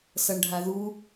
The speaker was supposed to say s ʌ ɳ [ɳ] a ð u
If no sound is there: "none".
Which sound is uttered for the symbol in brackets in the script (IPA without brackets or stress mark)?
ɖʱ